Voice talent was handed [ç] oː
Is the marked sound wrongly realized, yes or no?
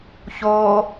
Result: no